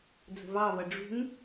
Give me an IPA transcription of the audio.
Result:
d͡z ə̤ v ɑ v ʌ ɖ͡ʐ ṳ ŋ

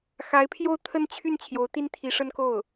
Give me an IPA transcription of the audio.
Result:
x a˧˥ ɪ̯ pʰ j o˥˧ ʊ̯ t̪ʰ ə˥˧ n t͡ɕʰ y˥˩ n t͡ɕʰ j o˧˥ ʊ̯ t̪ i˥ n t̪ʰ i˧˥ ʂ ə˥ n k o˥˩ ʊ̯

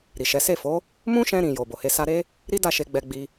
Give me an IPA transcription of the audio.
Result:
ɾ i˨ ʃ ɛ˨˦ s e˦˨ f o˨˦ | m ũ˦ ʃ ɛ̃˧ ɾ ĩ˨ j o˨ b o˨ h e˧ s a˧ ɾ e˦ | ɾ i˦ d a˦˨ ʃ e˧ ɡ͡b ɛ˧ ɡ͡b i˧

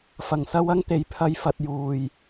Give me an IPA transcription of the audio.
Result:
f ɐ˨˩ ŋ s ɐ˧ w ɐ˥ ŋ t̪ e˨ j pʰ ɐ˧ j f ɐ˧ t̚ j uː˨ j

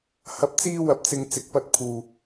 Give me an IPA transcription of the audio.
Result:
h ɐ˨˥ p̚ t͡s iː˧ w ɐ˨ p̚ t͡s ɪ˨ ŋ t͡s ɪ˨ k̚ p ɐ˧ t̚ pʰ uː˨

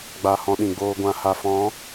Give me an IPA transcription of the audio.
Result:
ɡ͡b a˧ h ɔ̃˧ ɗ ĩ˨ ɡ͡b oː˧ ɡʷ ã˨ h a˨ f ɔ̃˨˦

